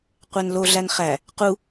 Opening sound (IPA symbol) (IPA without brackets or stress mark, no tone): qʷ